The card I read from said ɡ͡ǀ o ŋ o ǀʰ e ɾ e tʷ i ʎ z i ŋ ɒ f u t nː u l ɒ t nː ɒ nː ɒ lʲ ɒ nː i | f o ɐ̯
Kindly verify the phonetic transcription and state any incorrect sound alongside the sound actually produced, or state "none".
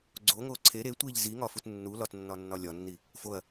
none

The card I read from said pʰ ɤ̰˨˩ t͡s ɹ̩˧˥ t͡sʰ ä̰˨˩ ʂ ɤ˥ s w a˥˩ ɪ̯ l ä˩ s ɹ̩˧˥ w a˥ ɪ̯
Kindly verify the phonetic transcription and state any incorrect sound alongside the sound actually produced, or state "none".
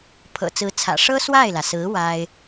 none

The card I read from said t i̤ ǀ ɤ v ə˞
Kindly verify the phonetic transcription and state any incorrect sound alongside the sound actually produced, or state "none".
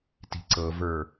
none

